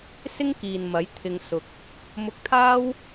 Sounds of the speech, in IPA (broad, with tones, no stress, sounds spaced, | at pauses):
s ɪ˥ ŋ k iː˨ n m ɐ˨˥ j t̪ʰ ɪ˨ ŋ s ʊ˨ k̚ | m ʊ˧ k̚ t̪ʰ aː˥ w